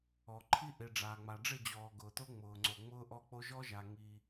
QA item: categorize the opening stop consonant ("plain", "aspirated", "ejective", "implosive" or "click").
click